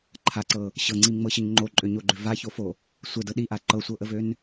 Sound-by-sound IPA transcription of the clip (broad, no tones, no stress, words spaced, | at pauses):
ǃʰaǀɤ | ɕɤŋ͡ǀimŋ͡mɤɕəɲ ŋ͡ǃoǃʼøɲoɡ͡ǃʏ vaçofo | sʷədɤ ɗiʔa ǃɤsʷɤʔəvøn